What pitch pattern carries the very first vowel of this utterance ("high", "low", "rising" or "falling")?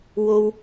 high